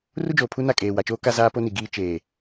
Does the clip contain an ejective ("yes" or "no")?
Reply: yes